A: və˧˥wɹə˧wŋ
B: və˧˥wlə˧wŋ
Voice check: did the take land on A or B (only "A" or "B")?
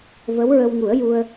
A